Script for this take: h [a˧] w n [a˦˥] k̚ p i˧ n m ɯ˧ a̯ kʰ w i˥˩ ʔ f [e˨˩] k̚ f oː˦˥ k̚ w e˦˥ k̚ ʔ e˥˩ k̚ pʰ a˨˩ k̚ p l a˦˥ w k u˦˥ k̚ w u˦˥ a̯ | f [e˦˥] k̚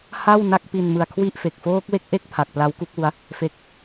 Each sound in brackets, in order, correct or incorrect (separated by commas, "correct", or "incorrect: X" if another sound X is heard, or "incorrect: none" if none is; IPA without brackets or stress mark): incorrect: a˥˩, incorrect: a˥˩, correct, correct